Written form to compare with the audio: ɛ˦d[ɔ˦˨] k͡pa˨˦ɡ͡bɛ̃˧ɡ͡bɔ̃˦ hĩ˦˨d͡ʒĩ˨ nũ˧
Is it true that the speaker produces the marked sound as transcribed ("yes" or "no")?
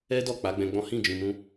yes